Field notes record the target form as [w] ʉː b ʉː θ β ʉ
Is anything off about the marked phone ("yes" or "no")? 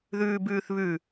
yes